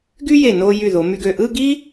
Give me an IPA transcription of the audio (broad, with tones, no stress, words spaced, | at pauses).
ɡy˥je˧˩ no˧ jy˧˩ðo˩˧my˧ɡø˧˩ ʔɯ˥˧ɡi˥